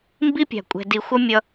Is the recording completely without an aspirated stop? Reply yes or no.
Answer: yes